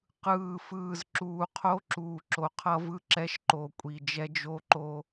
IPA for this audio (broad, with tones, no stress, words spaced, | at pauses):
qɯː˨fɯː˨z ǁuː˨qʰo˦ǁuː˨ ǁo˨qʰʌ˦vɯ˦ǁɛ˦ʃ ǃo˨kʷʼi˨ d͡ʒɛ˦d͡ʒo˦ǃo˦